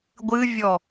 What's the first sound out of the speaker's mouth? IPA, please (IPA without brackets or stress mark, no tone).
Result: ɡʷ